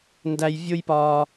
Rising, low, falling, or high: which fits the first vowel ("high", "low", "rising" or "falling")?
high